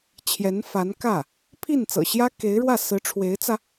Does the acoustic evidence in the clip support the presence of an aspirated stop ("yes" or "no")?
yes